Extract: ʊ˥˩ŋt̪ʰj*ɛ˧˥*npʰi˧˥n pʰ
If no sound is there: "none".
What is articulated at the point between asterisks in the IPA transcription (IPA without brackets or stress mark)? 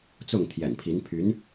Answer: ɛ̰˨˩